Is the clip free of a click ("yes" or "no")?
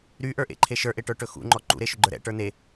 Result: no